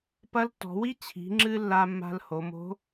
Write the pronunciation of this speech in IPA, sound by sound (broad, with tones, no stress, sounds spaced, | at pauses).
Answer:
p ɐ˧˥ l tː ɔ̤˩˧ w i˥ t͡ɕʰ i̤˩˧ ŋ͡ǁ ɨ˧ lː a˧ mː a̤˧ l h o˩˧ m o̤˧˥